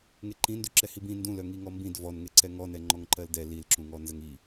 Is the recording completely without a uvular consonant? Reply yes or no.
yes